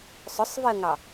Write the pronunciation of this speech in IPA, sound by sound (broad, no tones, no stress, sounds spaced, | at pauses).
sˤ ʊ sˤ v i ə̯ ŋ ɑ